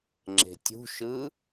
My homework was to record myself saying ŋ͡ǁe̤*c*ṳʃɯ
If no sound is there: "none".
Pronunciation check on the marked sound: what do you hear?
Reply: tʲ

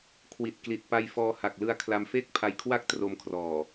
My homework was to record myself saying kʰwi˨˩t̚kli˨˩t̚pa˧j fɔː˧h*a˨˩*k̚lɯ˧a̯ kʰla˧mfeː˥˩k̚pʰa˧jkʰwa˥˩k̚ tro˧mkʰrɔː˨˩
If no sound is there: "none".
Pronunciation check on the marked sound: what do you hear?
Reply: a˨˩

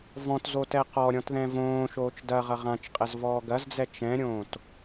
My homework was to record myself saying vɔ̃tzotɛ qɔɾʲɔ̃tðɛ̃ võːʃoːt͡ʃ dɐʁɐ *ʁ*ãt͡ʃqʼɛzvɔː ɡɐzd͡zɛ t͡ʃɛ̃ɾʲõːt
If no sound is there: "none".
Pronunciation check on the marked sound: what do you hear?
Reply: ʁ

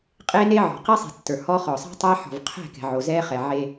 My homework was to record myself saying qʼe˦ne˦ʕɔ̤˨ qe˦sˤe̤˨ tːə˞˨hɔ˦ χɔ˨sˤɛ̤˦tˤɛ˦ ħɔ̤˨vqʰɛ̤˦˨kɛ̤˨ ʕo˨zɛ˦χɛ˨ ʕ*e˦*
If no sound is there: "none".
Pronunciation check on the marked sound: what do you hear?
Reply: e˦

